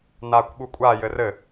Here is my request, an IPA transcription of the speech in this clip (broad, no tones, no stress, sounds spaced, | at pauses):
n aː kʷ ɓ u kʷʼ aː j ɘ r ɘ